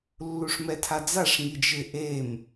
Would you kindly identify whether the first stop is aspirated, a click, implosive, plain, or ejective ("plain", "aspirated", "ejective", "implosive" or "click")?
aspirated